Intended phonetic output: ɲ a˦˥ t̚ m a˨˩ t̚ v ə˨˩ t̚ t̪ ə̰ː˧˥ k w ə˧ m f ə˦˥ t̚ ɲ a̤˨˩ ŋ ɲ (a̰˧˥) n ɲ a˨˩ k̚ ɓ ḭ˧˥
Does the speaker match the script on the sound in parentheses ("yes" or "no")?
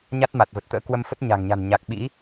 no